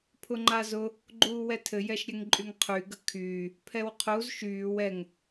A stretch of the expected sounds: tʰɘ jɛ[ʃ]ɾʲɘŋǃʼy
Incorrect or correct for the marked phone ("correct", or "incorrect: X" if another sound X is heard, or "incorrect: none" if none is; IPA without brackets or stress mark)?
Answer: correct